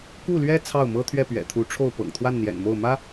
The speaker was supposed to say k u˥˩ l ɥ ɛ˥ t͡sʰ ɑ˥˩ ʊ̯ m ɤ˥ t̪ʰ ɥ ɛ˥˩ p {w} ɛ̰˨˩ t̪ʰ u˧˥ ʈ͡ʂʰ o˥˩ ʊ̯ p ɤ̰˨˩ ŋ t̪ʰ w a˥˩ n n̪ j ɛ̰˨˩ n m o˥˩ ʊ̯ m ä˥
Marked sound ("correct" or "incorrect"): incorrect